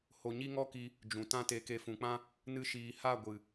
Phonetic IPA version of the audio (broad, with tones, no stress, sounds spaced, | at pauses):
h o˧ ɲ i˦ ŋ ɔ˦ k i˧ | d͡ʒ ũ˨ t ã˦ t e˧ k e˦ f ũ˧ k͡p ã˦ | n ɨ˦ ʃ iː˧ h a˦˨ ɡʷ ɨ˨